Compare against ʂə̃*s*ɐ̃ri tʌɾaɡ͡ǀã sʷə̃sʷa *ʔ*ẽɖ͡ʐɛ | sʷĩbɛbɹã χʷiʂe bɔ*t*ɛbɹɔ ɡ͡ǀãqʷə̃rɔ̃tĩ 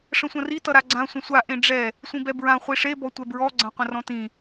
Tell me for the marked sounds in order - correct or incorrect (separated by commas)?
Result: incorrect, correct, incorrect